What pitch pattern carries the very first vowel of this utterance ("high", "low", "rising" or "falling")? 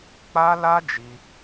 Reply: high